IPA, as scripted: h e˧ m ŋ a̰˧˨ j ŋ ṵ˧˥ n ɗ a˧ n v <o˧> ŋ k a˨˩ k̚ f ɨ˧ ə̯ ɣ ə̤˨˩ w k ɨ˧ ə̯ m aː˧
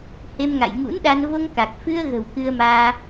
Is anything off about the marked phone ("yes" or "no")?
no